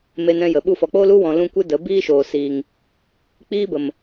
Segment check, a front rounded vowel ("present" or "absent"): absent